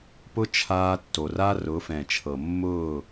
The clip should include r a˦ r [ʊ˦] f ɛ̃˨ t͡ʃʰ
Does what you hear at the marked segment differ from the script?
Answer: yes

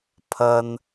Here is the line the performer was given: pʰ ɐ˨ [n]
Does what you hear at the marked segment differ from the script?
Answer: no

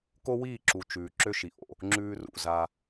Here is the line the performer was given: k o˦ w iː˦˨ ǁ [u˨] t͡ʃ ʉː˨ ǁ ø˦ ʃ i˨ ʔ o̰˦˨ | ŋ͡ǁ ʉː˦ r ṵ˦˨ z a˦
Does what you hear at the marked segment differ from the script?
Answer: no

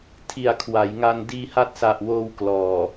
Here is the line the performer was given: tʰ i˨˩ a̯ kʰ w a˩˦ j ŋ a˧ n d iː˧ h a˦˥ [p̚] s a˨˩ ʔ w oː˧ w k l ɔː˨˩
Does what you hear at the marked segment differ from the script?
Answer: yes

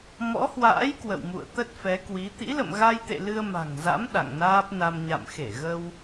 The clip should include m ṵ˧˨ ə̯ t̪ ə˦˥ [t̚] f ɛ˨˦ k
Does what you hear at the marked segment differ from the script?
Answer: no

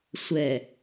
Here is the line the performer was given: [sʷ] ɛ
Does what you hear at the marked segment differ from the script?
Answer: no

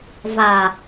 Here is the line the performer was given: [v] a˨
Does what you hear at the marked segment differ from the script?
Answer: no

